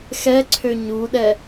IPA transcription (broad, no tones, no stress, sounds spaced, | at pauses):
x ɛ ǀʰ ø ɲ u ɗ ɛ